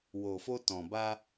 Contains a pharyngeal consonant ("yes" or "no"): no